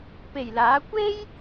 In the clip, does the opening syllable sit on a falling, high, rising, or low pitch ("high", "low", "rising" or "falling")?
low